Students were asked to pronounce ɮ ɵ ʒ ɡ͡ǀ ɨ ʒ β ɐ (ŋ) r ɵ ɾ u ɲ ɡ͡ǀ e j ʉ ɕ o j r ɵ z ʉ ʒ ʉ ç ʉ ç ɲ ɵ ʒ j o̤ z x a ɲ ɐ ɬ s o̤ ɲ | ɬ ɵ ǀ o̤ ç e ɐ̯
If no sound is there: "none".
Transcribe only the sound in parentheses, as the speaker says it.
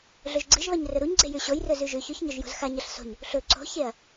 ɲ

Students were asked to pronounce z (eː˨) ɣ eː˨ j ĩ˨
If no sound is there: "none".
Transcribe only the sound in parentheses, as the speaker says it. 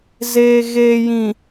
eː˨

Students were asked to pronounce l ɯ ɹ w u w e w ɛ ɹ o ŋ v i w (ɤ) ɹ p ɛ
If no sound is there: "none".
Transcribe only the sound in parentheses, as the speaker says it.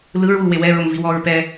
ɔ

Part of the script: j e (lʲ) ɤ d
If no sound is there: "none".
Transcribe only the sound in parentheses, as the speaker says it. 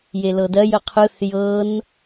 l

